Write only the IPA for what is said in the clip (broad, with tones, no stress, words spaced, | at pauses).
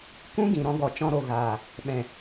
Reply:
kũ˦ɡĩ˨ ɾɔ̃˧ɡɔ˨t͡ʃɔ̃˧ɾo˨ ɣaː˨ | ɓɛ̃˨